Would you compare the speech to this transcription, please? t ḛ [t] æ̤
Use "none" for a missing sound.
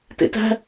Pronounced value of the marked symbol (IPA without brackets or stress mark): t